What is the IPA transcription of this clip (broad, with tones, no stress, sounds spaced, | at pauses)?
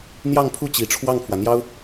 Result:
n̪ j ɑ˥˧ ŋ pʰ u˥˩ t͡ɕ i˨˩ ʈ͡ʂʰ w ɑ˥˩ ŋ pʰ w ä˩ n̪ j ɑ˥ ʊ̯